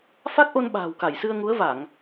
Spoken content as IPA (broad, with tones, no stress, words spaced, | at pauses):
fa˦˥k̚ʔo˧n ɓa̤ː˨˩wka˧˩jsɨ˧ə̯ŋu˨˦ə̯ va˧˩˨ŋ